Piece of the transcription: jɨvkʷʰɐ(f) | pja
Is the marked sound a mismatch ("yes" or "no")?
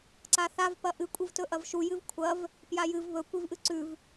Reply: yes